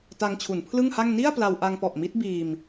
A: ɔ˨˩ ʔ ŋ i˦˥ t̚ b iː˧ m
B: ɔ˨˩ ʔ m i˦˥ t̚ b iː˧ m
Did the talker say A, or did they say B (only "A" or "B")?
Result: B